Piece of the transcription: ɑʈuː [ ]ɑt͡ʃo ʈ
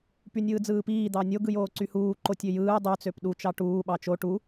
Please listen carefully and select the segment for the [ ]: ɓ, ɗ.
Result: ɓ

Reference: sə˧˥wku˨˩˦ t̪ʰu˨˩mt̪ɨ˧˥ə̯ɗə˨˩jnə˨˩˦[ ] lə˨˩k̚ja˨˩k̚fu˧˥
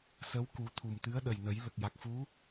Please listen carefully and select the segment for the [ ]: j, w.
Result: j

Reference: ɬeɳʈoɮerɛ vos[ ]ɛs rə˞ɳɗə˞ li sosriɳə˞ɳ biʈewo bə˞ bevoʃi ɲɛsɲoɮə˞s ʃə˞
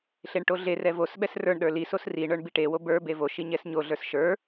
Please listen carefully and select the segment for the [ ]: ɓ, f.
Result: ɓ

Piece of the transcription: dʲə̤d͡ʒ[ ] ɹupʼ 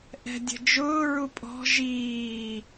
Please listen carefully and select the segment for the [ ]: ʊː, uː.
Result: ʊː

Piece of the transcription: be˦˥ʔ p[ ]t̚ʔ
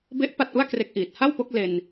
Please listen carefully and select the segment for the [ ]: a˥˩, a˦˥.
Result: a˥˩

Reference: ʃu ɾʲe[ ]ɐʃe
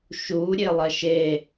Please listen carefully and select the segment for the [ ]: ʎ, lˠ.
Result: lˠ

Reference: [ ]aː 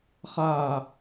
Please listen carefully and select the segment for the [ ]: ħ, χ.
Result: χ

